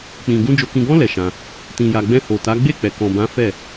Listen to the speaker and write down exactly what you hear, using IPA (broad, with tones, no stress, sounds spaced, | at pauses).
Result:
k͡p ĩ˨ ɡ ũ˧ d͡ʒ o˨ k ĩ˨ ɡ ɔ̃˧ l ɛ˨ ʃ ã˧ | t ĩ˨ j a˨ ɡ͡b ɛ̃˧ h o˨ t a˨˦ ɡ͡b e˦˨ k͡p ɛ˨ k ɔ̃˨ b ã˨˦ f ɛ˦˨